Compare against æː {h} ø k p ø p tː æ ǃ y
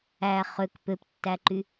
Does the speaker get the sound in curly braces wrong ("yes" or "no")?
yes